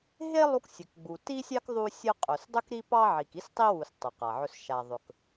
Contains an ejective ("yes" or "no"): yes